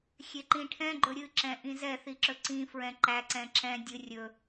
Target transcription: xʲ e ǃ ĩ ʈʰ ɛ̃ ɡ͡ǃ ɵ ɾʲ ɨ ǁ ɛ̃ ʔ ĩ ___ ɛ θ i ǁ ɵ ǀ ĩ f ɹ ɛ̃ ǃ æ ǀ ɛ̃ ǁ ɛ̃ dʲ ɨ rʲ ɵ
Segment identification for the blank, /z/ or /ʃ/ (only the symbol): z